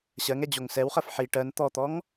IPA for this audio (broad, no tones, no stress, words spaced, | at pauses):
ɕɜŋɛ d͡ʑoŋsɛwχɜf ħi ʈɜn t̪ɔt̪ɔŋ